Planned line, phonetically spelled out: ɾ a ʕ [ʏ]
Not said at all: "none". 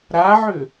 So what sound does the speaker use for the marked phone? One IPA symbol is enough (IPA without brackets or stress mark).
ʏ